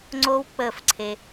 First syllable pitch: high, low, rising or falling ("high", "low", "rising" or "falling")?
high